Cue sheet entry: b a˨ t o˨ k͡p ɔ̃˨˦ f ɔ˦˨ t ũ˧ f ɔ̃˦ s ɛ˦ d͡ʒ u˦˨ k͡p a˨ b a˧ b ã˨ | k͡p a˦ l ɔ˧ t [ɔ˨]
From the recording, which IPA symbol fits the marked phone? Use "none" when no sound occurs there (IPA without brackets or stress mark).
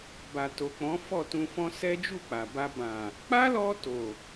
o˨